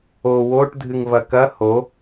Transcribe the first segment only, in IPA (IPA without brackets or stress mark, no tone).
o